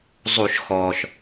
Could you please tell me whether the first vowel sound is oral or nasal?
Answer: oral